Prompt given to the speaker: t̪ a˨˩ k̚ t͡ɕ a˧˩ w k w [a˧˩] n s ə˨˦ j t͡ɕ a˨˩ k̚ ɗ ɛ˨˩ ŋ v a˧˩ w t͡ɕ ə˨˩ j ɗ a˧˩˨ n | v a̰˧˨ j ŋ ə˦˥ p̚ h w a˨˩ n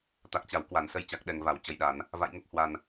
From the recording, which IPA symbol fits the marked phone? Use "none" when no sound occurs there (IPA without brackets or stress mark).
a˧˩